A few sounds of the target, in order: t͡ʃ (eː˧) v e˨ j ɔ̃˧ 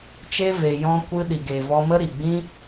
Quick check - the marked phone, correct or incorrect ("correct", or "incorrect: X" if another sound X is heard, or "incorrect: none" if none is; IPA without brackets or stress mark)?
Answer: incorrect: e˧